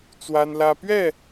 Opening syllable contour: high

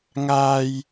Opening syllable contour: high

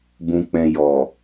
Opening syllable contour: low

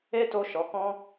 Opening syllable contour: high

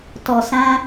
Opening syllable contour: low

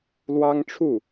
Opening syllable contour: high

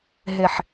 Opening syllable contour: low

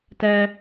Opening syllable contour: high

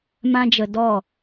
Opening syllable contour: high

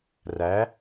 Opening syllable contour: rising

